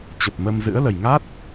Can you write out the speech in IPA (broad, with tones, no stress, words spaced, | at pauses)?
t͡ɕə˨˩p̚mə˧mzɨ̰˧˥ə̯ lə˨˩jŋa˦˥t̚